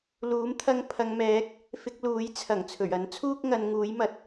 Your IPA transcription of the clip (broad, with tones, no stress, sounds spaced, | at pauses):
l uː˨˥ m t̪ʰ ɐ˧ ŋ pʰ ɐ˨˧ ŋ m ɛː˨˥ k̚ | f ɪ˧ k̚ l uː˨˥ j t͡sʰ ɐ˨˩ ŋ t͡sʰ ɵ˨˩ ɥ ɐ˨˥ n t͡sʰ uː˥ k̚ ŋ ɐ˨˧ n ŋ uː˨˥ j m ɐ˨˥ t̚